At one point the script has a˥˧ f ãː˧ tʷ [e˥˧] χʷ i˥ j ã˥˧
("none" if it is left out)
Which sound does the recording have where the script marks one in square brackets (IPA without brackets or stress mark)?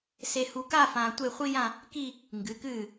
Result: e˥˧